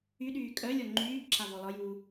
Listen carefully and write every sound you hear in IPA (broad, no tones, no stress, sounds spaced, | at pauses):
y ɗ yː kʼ œ lʲ ɔ ŋ͡ǃ yː b ǁ a v ɔ l ɒ j uː